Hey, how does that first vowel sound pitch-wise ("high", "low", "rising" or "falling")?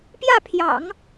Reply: falling